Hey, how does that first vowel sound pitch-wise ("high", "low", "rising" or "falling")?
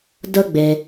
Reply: high